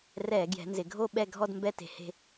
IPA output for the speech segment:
r ɛ˧˩˧ ɡ j ɛ̤˩˧ n z ɪ˩˧ ɡʱ o˦˨ ɓ ɛ˦˨ ɡʱ ɔ˦˨ d m b ɛ˦˨ t e̤˧˩˧ h e̤˦˨

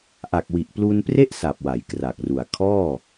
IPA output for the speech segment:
ʔ a˨˩ k̚ w i˨˩ ʔ p l u˧ n p r e˥˩ ʔ s a˨˩ p̚ w a˩˦ j k r a˨˩ k̚ r u˨˩ a̯ kʰ ɔː˥˩

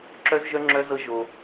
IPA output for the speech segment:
ǁ œ˦ z ʒ œ˦ ŋ͡ǁ œ˦ z ɤ˦ ʒ o˧

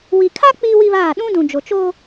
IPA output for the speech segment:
w i˨ kʰ a˦ k͡p iː˦ w i˦ β aː˦˨ ɗ ũ˦ d ũ˨ d͡ʒ o˨ t͡ʃ o˦

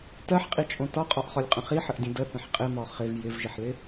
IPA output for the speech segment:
t ɜ ħ qʼ i t͡ʃʼ õ t ɒ qʼ ɒ ʔ χ ɒ lʲ qʼ ə̃ χ i ħ ə ʔ dʲ ə̃ d ə θ ə̃ ħ qʼ ɪ m ɒ χ ɪ v j ɪ v ʒ ɪ ħ l ɪ

